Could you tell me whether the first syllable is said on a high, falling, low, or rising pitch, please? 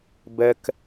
high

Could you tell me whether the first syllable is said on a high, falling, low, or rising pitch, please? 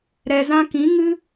low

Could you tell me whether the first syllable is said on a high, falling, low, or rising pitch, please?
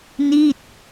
falling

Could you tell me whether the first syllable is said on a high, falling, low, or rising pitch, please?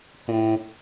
high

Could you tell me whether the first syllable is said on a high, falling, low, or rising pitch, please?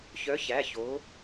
rising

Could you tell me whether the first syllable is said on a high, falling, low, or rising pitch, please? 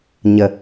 low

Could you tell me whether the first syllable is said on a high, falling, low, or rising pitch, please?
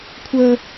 high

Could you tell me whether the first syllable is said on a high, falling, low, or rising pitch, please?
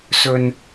low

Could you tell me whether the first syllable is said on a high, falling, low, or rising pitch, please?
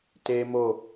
high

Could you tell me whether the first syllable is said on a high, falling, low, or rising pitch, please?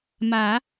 low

